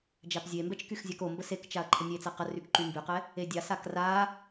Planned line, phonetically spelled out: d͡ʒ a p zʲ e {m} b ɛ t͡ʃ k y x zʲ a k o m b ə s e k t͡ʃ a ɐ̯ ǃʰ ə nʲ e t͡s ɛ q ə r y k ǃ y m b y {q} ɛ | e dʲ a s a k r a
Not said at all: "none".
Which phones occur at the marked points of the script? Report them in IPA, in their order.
m, q

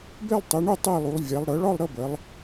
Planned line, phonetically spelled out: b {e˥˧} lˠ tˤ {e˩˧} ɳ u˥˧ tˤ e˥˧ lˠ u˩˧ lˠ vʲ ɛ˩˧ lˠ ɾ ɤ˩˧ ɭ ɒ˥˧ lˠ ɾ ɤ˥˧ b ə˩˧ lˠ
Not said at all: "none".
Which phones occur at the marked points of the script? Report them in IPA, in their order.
e˥˧, e˩˧

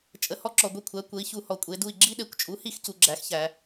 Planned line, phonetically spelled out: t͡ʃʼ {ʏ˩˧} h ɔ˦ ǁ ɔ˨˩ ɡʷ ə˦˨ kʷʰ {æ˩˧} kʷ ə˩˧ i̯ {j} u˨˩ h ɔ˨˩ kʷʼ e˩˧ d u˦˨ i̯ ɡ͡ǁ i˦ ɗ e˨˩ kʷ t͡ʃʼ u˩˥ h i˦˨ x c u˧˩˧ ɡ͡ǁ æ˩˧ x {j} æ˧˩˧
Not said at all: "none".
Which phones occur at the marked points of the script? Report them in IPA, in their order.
ə˩˧, æ˩˧, ç, ç

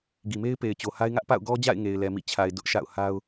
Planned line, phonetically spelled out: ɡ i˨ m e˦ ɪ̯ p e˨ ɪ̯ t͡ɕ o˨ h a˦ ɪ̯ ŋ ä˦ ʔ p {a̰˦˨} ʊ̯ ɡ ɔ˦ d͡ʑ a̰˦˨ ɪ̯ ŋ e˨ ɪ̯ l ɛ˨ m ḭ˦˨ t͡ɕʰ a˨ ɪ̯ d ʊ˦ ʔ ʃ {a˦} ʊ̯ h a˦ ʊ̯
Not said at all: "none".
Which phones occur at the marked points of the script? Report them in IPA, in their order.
a̰˦˨, a̰˦˨

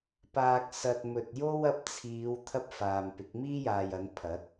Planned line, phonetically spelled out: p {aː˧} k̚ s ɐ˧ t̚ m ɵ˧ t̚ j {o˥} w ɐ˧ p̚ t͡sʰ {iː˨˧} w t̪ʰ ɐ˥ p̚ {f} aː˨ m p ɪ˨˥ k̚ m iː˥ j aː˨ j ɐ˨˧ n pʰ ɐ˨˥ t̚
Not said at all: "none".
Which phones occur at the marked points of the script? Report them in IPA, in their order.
aː˧, o˥, iː˨˧, f

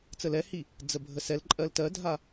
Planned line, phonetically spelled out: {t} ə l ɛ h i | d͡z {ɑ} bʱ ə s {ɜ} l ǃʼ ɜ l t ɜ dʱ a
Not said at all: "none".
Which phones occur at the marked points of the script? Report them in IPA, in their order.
t͡s, ə, ɛ

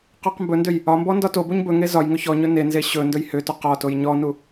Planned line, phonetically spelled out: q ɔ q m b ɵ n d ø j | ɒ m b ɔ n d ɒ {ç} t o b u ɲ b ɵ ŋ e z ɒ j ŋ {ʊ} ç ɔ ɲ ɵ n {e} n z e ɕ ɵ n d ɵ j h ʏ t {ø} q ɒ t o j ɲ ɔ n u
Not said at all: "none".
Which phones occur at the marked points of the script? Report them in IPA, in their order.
none, ɵ, e, ɵ

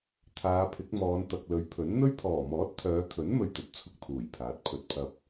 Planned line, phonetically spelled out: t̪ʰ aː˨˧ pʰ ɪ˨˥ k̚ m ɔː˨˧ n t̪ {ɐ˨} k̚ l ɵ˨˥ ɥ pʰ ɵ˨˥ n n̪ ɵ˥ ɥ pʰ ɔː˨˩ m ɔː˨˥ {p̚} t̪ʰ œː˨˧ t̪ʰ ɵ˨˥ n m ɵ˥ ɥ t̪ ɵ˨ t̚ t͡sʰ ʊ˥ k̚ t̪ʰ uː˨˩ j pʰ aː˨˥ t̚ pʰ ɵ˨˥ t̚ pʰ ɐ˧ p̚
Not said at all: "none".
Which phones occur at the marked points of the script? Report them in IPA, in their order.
ɐ˨, t̚

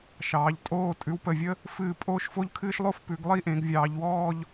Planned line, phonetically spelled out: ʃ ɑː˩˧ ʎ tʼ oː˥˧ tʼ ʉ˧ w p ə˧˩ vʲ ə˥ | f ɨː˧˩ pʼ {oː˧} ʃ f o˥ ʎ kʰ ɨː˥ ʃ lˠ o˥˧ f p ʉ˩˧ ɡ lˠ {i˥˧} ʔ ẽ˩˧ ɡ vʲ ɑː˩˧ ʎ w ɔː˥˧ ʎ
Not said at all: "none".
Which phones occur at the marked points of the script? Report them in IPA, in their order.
oː˥, i˥˧

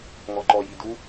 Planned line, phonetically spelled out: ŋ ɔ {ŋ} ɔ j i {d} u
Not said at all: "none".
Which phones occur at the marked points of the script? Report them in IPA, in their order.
ǃ, d

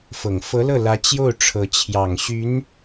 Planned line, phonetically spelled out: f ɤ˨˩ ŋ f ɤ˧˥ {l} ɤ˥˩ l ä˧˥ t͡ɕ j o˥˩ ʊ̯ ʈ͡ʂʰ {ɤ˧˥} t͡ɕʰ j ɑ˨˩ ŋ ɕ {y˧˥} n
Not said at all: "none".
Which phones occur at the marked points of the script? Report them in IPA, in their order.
l, ɤ˧˥, y˧˥

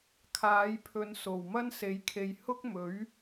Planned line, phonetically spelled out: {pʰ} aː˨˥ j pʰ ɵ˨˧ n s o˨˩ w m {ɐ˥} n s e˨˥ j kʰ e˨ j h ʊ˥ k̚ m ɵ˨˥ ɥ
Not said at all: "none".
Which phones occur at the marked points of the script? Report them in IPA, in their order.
kʰ, ɐ˥

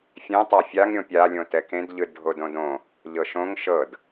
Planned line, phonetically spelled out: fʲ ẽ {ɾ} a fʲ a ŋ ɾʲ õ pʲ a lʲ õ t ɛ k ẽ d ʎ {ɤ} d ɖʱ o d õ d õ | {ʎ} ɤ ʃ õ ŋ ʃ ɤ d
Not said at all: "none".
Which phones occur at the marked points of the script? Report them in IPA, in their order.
tˤ, ɯ, ʎ

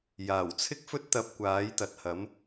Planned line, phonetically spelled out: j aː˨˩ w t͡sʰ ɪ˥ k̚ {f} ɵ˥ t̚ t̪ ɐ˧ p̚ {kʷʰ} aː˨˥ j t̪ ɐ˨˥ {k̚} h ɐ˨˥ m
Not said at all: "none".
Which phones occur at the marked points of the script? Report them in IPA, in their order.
f, kʷ, t̚

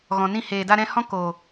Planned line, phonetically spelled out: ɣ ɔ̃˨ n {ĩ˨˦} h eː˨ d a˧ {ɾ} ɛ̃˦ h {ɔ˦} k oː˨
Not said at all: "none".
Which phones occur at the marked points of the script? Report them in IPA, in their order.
ĩ˦˨, ɾ, ɔ̃˦

